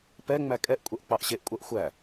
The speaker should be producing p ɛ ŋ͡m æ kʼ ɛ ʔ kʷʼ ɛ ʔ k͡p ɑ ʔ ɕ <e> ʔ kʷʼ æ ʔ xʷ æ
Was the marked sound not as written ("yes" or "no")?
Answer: no